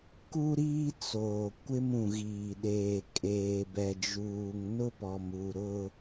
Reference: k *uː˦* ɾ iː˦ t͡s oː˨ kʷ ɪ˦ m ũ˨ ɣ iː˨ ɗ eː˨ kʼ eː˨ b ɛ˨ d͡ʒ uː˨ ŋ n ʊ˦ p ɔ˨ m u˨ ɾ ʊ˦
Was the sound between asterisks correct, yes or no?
no